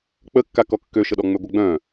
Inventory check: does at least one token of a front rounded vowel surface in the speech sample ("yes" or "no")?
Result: yes